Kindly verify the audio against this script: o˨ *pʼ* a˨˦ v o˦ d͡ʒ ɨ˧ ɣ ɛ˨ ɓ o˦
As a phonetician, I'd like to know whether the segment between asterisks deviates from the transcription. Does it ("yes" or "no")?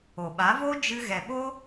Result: yes